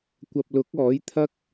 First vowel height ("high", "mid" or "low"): low